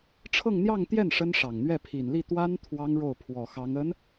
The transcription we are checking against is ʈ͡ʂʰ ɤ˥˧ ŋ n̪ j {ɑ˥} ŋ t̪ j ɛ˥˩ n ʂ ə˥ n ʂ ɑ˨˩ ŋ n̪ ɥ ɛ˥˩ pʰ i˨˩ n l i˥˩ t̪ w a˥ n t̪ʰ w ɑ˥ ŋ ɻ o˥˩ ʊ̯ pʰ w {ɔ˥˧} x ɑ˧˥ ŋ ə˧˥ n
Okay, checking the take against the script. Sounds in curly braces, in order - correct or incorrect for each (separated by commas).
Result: incorrect, incorrect